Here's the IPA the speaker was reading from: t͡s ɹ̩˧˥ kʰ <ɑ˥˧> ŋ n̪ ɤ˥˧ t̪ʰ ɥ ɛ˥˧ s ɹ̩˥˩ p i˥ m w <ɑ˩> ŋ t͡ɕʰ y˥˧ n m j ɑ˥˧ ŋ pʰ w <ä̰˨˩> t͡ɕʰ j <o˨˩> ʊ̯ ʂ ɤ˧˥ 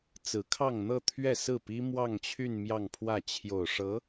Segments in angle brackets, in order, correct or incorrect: correct, incorrect: ɑ˥˧, incorrect: ä˥˩, correct

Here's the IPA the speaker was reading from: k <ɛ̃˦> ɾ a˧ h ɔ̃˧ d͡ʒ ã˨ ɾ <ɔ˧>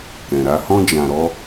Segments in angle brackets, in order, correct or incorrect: incorrect: ɛ̃˨, correct

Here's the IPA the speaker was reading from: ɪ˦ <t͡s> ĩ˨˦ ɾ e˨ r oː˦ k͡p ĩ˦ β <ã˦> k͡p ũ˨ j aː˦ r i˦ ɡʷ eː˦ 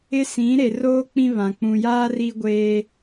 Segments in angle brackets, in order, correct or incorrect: incorrect: s, incorrect: ã˨

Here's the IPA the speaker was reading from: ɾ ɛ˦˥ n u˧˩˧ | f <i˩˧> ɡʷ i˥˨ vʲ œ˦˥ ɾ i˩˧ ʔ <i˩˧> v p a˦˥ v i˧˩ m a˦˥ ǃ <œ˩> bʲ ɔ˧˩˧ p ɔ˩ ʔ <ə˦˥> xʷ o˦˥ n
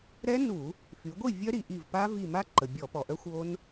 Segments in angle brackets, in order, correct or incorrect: incorrect: y˩˧, incorrect: i˧˩, incorrect: ə˩, incorrect: œ˦˥

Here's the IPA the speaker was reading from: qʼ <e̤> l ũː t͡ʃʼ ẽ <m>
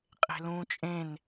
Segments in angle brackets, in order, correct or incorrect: correct, incorrect: n

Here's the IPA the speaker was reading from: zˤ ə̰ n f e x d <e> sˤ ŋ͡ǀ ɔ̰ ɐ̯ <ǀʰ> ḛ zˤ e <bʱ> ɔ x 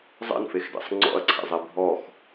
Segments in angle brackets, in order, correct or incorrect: incorrect: ḛ, correct, correct

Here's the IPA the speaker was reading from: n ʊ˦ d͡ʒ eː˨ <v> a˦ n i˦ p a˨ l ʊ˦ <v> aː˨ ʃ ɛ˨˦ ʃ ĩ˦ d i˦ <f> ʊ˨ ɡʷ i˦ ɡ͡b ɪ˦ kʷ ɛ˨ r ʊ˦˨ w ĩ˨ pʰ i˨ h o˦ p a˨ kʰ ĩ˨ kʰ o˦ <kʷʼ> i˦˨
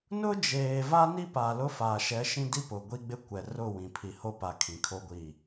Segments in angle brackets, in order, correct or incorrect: correct, incorrect: f, incorrect: p, incorrect: ɡʷ

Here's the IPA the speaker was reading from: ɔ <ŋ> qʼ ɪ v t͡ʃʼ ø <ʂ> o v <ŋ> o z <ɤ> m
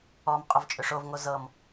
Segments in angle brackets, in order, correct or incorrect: incorrect: m, correct, correct, correct

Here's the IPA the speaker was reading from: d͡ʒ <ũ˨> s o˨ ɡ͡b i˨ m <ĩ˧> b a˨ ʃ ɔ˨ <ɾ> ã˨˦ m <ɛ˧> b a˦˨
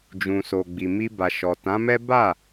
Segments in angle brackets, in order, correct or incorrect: correct, incorrect: i˧, incorrect: t, incorrect: ɛ˦

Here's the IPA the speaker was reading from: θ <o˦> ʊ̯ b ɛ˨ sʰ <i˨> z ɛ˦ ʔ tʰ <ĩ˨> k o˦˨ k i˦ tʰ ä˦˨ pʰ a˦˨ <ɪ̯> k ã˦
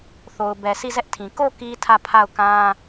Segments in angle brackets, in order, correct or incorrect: incorrect: o˨, incorrect: i˦˨, correct, incorrect: ʊ̯

